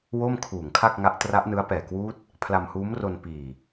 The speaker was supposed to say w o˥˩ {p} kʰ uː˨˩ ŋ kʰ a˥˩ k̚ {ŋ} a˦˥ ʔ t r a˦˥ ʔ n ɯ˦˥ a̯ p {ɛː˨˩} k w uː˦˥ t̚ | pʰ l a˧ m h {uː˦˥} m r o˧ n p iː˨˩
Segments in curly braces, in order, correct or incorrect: incorrect: m, correct, correct, correct

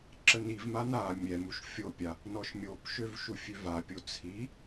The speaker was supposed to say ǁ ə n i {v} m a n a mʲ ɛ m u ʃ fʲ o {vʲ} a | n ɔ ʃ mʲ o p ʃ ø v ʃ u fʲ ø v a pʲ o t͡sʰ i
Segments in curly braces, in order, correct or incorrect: correct, incorrect: pʲ

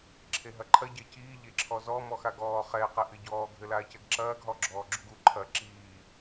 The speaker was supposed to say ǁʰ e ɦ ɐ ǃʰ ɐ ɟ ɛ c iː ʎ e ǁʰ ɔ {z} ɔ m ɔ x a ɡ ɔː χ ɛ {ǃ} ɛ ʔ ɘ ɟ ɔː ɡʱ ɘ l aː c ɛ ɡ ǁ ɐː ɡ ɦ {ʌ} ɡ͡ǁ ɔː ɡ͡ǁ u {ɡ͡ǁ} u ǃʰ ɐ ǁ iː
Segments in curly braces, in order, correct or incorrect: correct, incorrect: q, incorrect: ɔ, incorrect: ɡ

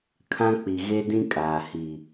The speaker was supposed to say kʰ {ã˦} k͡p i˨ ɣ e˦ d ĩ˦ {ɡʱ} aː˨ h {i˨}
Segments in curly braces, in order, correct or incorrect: correct, incorrect: kʼ, correct

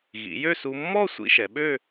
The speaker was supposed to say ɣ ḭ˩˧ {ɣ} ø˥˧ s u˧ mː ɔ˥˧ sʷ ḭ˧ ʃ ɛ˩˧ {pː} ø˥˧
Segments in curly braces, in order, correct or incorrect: incorrect: j, incorrect: ɓ

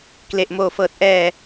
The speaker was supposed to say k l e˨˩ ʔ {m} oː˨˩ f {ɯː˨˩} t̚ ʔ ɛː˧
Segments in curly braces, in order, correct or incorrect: correct, incorrect: ɤː˨˩

